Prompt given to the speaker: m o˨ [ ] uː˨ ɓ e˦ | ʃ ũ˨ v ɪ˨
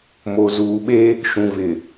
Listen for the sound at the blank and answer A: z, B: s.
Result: A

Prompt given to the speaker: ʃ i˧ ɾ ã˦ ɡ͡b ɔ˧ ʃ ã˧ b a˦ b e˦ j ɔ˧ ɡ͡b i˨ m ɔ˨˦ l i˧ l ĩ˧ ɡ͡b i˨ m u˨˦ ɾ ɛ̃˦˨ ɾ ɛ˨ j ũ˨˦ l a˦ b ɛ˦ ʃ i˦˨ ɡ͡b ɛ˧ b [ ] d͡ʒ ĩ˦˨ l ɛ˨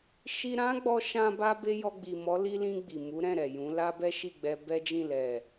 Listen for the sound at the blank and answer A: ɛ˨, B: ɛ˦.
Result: B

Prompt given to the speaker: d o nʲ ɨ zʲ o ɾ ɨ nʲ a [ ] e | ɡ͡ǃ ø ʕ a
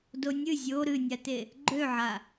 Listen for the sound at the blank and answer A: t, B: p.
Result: A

